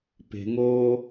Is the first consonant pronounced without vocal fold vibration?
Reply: yes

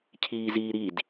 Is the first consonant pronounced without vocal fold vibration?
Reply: yes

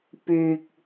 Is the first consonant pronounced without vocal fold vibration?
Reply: yes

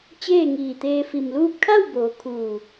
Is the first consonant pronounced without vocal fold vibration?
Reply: yes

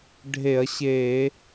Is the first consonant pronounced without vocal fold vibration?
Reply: no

